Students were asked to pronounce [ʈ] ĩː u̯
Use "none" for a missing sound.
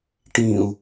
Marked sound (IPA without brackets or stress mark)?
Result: ʈ